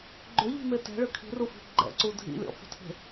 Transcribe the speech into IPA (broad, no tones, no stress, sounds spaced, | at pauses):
ɡ͡ǃ ʏ ʎ i̤ m e t ɛ̤ ɭ ʏ kʰ i̤ r u f i̤ ɡ͡ǃ ɛ̰ ǀ u dʱ ḭ lʲ ɔ̰ f ə̤ tʰ e̤